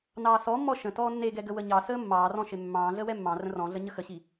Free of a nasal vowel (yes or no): no